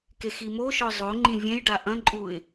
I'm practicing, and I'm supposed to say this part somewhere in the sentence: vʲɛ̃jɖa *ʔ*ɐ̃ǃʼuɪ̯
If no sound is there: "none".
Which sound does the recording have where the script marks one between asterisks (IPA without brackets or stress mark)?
ʔ